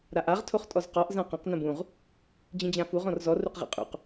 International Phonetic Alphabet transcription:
ɾaʔaʁ tʰoχtʼɔzqɔʔ zãqɐ̃q nɐ̃bũʁ | d͡ʑĩd͡ʑãfuʁ ɔ̃rzɔ ruqʁḭqʼṵq

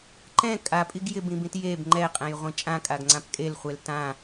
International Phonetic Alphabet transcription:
ǃɛ̃ kʼapʼiɡ jɪbĩbĩt jeb ŋ͡ǃɛqʼɛ̃jʁʷĩ t͡ʃʼãkʼaɡŋ͡ǀãp kʼelχʷel tã

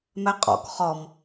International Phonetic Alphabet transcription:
mɛqʼɔ̰k χɔm

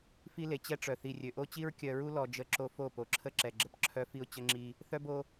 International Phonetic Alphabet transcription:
fi˦le˨t͡ɕɛ˦ʈ͡ʂœ˨ θi˨rʲø˨ ʔo˦t͡ɕi˦ɹ kʲœ˨ɹu˦lɔ˨ d͡ʒə˦ ǁo˦ fo˦˨ po˨ǁʰə˦ǁɛ˨ɡ͡ǁə˨p ǁʰœ˦ fi˦ʊ̯t͡ɕə˦ŋ͡ǁi˦ | θœ˦bo˦

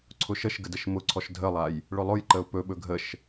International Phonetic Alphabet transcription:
ǀʰʊʃəʃ ɡədəʃmʊǀʰɔʃ dʱəlˠaj | ɭʊlˠʊj ǃəʊ̯pɵɓɵ ɡʱəʃ

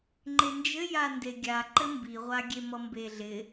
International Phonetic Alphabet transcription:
ŋ͡ǃend͡ʒɘ jandeɡʲa ǃɘmbiʁʷa ɡʲemʌmbeɮɪ

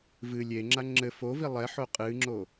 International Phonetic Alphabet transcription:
vɨ lʲeŋ͡ǁa ŋ͡ǁɘ fovi lˠɛħo qʼɨŋ͡ǁo

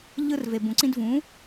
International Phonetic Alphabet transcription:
ʎɯ˧rve˨ bũ˨ǀĩ˧dvũ˨˦

